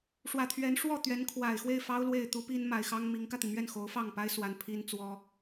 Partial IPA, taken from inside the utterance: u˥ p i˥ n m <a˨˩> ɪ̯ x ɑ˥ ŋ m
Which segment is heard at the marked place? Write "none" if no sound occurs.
a˨˩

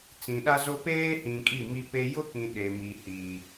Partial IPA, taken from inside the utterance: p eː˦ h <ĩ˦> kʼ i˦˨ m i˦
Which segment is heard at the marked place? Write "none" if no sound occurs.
ĩ˨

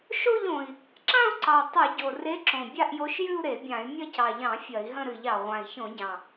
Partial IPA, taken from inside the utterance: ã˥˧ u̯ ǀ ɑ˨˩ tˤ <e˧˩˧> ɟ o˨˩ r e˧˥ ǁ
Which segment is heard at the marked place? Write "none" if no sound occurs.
ɨ˧˩˧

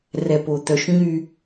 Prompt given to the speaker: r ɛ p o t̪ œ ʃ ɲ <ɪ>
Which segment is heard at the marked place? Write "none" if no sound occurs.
y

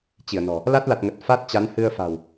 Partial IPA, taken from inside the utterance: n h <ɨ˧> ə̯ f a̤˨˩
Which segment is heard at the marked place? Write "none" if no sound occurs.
ɨ˧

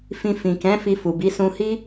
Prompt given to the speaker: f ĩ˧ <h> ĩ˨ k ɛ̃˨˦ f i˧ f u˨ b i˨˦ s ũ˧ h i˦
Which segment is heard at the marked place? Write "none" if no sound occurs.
f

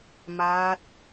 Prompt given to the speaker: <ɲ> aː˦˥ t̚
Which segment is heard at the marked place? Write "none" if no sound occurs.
m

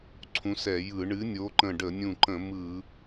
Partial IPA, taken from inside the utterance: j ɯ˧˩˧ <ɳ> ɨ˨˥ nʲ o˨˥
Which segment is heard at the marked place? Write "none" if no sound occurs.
ɳ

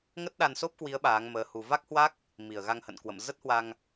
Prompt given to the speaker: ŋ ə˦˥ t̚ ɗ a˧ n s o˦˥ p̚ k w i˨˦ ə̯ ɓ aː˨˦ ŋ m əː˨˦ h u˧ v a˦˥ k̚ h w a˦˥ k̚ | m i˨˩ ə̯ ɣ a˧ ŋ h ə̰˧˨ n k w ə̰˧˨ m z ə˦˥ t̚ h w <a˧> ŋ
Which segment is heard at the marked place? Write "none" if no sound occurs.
a˧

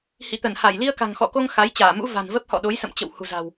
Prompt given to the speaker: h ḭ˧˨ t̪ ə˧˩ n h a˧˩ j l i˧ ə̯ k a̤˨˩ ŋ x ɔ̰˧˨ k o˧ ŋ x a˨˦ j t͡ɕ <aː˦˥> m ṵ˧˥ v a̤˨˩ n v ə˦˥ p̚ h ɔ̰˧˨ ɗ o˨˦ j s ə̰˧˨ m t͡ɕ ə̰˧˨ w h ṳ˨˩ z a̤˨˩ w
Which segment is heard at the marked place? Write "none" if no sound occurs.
aː˧˩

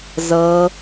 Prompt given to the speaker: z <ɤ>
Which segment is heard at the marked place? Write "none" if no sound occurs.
ɤ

